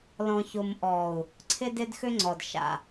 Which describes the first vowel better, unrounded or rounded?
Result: rounded